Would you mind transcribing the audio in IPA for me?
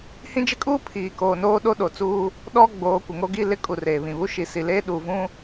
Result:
hĩ˦d͡ʒɪ˦kʼuː˦ pʰiː˨koː˨noː˦ ɗo˦ɗo˨t͡suː˦ | ɗɔ˦ ɡ͡boː˨˦kʷɪ˨ŋo˦ɡi˦ lɪ˦kʼu˨ reː˨βĩ˨ βu˦ ʃi˨si˨leː˦ ɗu˨vũ˦

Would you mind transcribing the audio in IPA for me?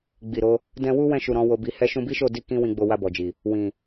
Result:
ɡ͡bi˨ɾo˨˦ | dɛ̃˧ wu˦ wɛ̃˦˨ʃu˨ ɾɔ̃˨˦wo˧bi˧ hɛ˦ ʃũ˧bi˦ʃo˦˨di˧ kĩ˦wĩ˧ɡ͡bo˧ wa˧bɔ˨d͡ʒi˨ | wĩ˨

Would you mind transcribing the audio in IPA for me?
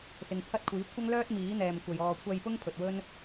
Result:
sɪ˨ŋt͡sʰɐ˥t̚kʷʰiː˨˥ kʷʰɐ˥ŋlœː˥t̚ miː˨˥n̪ɛː˨mkʷɐ˨j ɔː˨kʷʰɐ˧jpʊ˥ŋ pʰɵ˨t̚wɵ˥n

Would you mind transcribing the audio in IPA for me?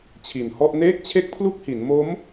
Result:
t͡ɕʰi˨˩nhɔ˥˩ʔ neː˥˩k̚t͡ɕʰe˥˩k̚pʰlu˥˩k̚hi˩˦n mo˦˥m

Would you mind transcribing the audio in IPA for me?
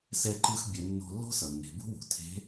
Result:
sɛ˧ǃɯ˧x bʲɛ˩˧ nːo̤˧lːo̤˥sʌ˩nːe̤˩˧ bṳ˥wṳ˩ tʰe̤˧˥

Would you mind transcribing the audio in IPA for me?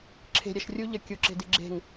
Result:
ǁʰe̤ ɾʲæʃrʲu ʎəkʲu ǁe̤diɡ͡ǁe̤ŋ

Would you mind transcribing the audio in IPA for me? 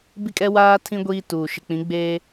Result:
bi˦kʼɛ˦waː˦ tʰĩ˦ ɡʷiː˦tuː˨ ʃɪ˨k͡pĩ˨˦ɡ͡beː˦

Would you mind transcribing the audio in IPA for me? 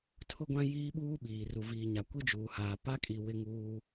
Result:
tʰʊ˦ɡʷã˦ jiː˦ɓuː˦ɓiː˨ ru˨viː˨ɲa˨ kʷi˦d͡ʒuː˨haː˨ pa˦kʼi˨ wɪ˦ŋuː˦

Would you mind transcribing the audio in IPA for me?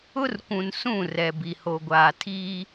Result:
ʊ˦rkʷũ˨n sũ˦˨ rɛ˨bi˨ho˨ɡʷaː˨ tʰiː˦

